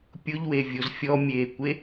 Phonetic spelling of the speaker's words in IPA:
pʲ ʊ ʎ w e vʲ o z fʲ ɔ mʲ eː kʷ e

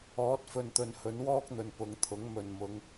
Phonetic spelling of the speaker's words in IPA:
ɔː˨˥ t̚ f ɵ˨ n t̪ ɵ˨ n h ɵ˨˥ n w ɔː˥ k̚ n̪ ɵ˨ n p ʊ˨˧ ŋ t̪ʰ ʊ˨˥ ŋ m ɵ˨˩ n m ʊ˨˧ ŋ

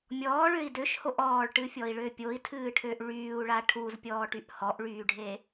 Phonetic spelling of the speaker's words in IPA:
mʲ ɔː ɭ ø i̯ d ø ʃ h o ʔ ɔː ɭ ʈ ɨ fʲ ɔ i̯ ɭ ø pʲ o i̯ tʰ ɨː ʈʰ ø ʔ ɭ yː u̯ ɭ a ʈʰ u z pʲ ɔː ʈ y ʔ h ɔ ʔ ɭ yː ɖʱ e

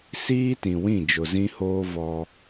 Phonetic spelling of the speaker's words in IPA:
s iː˦ t ĩ˨ w ĩ˦˨ d͡ʒ ʊ˨ z ĩ˦ h oː˦ v ɔ˦

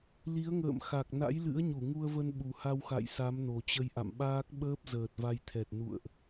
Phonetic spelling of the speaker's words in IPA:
l i˨˦ ə̯ ŋ ə̰ː˧˨ m x a˨˩ k̚ n a̰˧˥ j l ɨ̰˧˥ ə̯ ɲ u˧˩ ŋ u˧ ə̯ v ə˧ n ɓ u˨˩ h a˧ w x a̰˧˨ j s a˨˦ m n o˨˩ t͡ɕ ə˧ j ʔ a̰˧˨ m ɓ aː˦˥ k̚ ɓ əː˦˥ p̚ z əː˨˩ t̚ v a˧ j t̪ʰ ɛ˨˩ t̚ n ṵ˧˨ ə̯ ʔ

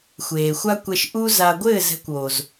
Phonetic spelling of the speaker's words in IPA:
xʷ eː˨ xʷ a˦ kʷ ɛ˧ ʃ ʔ u˦ z a˨ ɡʷ ɘː˦˨ z ɛ̤˧ kʷ oː˨ z

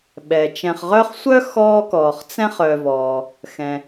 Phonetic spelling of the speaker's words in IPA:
ɓ ɛ˩ t͡ʃ ɛ̃˨ χ ʁ œ˦ χ sʷ œ˥ x ɔː˥ k ɔː˨ χ t͡s ɛ̃˦ χ œ˨ v ɔː˩ | x ɛ̃˩

